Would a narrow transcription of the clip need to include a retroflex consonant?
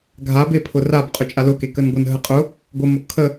no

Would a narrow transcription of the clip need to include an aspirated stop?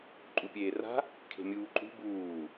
yes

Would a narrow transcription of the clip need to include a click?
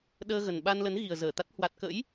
no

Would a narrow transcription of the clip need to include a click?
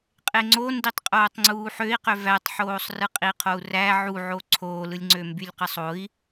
yes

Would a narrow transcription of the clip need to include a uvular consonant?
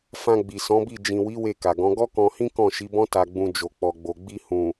no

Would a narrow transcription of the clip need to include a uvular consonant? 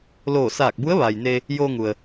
no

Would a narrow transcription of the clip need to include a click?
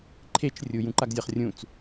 yes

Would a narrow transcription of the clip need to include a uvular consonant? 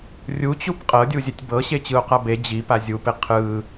yes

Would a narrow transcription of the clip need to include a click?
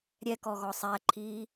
yes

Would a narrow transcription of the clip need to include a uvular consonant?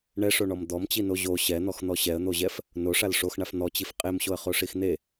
yes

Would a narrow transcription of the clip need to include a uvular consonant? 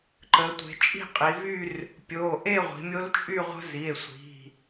yes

